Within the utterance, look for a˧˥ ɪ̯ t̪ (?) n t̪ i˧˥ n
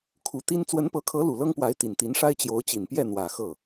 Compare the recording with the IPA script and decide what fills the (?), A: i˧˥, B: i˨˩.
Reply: B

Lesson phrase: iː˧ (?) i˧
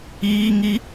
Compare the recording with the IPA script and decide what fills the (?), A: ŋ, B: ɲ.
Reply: A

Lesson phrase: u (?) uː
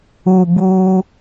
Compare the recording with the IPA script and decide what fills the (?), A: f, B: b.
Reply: B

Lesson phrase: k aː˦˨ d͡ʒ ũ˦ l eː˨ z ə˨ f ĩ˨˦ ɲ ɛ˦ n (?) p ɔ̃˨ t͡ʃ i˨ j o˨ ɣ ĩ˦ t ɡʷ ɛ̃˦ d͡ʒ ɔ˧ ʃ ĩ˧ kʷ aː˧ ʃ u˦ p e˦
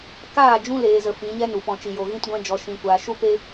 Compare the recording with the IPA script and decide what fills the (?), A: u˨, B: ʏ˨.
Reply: A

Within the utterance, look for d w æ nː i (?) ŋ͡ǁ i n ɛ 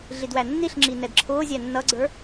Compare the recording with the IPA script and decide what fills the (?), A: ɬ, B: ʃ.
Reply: A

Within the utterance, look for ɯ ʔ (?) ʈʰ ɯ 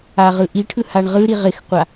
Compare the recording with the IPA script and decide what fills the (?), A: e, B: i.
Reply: B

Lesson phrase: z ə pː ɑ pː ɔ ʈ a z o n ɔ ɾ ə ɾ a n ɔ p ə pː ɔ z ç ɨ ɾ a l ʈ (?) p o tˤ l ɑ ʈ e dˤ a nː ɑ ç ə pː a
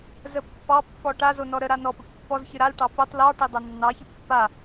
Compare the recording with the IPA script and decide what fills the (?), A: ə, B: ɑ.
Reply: B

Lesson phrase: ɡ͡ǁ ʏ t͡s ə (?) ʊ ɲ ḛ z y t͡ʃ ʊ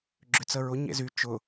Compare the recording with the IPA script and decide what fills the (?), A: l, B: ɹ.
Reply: B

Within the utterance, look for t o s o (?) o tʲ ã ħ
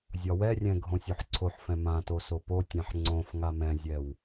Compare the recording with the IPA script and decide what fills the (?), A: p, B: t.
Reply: A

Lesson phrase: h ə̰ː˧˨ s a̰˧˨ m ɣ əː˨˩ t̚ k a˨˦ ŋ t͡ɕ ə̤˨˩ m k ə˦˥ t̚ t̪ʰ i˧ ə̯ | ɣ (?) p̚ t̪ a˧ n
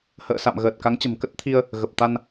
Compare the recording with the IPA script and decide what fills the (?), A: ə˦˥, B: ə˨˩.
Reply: B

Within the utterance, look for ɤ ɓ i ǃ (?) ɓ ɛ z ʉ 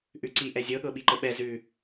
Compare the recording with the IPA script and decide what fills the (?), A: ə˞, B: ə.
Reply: B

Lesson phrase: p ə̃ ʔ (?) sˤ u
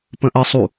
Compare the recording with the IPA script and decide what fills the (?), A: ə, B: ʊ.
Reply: A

